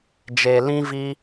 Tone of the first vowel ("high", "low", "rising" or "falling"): low